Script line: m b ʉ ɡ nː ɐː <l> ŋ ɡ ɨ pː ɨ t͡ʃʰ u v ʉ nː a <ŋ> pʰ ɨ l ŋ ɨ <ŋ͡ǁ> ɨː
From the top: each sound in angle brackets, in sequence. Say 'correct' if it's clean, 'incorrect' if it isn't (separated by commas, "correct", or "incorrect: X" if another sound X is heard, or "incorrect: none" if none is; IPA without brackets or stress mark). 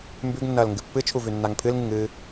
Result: correct, correct, incorrect: ŋ